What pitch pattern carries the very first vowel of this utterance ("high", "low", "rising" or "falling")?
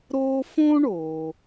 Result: high